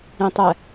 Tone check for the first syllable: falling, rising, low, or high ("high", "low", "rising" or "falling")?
low